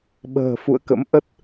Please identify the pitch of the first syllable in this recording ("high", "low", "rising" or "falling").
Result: low